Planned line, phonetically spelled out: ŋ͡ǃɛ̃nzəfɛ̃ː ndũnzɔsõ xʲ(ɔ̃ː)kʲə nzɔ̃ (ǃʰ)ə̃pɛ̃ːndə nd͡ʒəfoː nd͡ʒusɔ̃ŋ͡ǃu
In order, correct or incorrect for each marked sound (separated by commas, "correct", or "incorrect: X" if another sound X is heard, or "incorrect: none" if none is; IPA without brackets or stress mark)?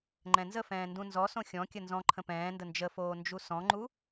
incorrect: ɔ̃, correct